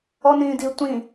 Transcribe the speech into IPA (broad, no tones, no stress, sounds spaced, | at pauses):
ɔ n ĩː d i tʷ ĩ